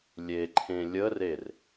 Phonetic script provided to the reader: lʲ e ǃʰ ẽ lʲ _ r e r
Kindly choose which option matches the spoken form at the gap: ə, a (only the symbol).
ə